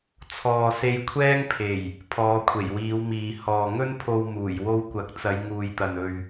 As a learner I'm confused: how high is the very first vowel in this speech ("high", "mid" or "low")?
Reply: mid